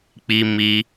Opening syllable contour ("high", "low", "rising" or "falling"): high